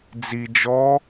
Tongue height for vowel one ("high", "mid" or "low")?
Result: high